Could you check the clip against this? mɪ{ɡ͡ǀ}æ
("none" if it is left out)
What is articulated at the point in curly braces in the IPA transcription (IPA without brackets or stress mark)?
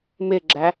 ɡ͡ǁ